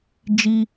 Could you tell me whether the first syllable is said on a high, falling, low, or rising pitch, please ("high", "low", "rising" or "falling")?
high